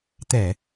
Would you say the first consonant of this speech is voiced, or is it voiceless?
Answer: voiceless